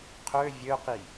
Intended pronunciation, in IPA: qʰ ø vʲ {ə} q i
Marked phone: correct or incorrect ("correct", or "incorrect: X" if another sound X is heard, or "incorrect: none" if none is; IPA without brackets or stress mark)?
incorrect: ø